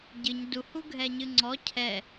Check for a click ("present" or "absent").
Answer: present